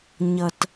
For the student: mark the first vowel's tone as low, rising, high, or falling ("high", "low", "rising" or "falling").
low